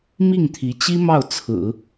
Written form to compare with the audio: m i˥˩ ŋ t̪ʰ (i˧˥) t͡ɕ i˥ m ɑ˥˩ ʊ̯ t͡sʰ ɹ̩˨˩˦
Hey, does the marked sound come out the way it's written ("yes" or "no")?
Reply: yes